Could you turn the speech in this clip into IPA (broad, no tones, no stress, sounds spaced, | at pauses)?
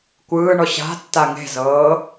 kʷ ɯː ɳ ɔ ɕ a̤ tː a ŋ e̤ z ɤː